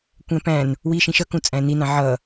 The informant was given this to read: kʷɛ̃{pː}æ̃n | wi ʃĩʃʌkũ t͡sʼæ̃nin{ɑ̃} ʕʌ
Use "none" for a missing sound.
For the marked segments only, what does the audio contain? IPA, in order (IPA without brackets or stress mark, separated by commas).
p, ɑ̃